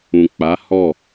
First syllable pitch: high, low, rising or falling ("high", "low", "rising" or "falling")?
low